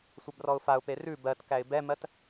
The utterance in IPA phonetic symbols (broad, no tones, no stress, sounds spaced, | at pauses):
sʷ ɛ b r ɔ ʊ̯ f a ʊ̯ p e r ʉ b ɜ t k æ ɪ̯ b ɛ m ɜ t